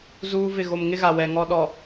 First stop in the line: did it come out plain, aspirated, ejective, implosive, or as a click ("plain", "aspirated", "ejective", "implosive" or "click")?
implosive